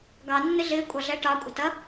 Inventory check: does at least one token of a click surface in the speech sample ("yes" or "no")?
no